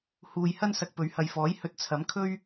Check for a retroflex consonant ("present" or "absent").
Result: absent